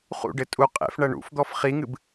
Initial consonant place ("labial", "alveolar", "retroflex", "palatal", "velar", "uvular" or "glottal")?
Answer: uvular